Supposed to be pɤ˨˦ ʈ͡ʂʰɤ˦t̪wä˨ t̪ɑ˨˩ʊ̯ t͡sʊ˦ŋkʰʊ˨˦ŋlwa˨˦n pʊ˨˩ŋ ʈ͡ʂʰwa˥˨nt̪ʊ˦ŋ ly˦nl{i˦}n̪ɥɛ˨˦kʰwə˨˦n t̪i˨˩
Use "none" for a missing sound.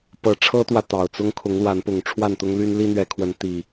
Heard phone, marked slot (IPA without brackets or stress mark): i˦